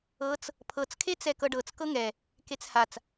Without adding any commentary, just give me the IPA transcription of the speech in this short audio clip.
ɤ t͡s | pʰ ɤ t͡s kʰ e t͡s ɛ k ɤ ɖ ɤ t͡s k ɤ ŋ ɛ | k e t͡s h a t͡s

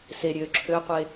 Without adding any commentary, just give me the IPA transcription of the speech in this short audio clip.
s e ɾʲ øː ǁʰ ø qʷ e

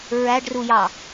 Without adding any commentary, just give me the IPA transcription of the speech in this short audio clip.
ɹ æ ɖ r u j ɑ

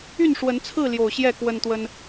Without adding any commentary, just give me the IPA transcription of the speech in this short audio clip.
y˥˨ n ʂ w ə˨˦ n t͡sʰ ɹ̩˥˨ l j o˨˩ ʊ̯ ɕ j ɛ˥˨ k w ə˦ n t̪ w ə˦ n

